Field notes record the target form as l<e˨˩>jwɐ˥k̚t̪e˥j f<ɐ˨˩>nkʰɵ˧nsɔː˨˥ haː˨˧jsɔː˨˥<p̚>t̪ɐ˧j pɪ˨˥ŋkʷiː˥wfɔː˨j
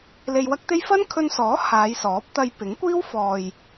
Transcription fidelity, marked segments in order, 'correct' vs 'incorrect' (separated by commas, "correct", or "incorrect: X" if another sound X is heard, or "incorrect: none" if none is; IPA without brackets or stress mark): incorrect: e˧, incorrect: ɐ˥, correct